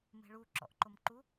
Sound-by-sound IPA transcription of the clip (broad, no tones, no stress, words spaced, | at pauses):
me̤ɭu ǁɔ̰ʔǃomǃu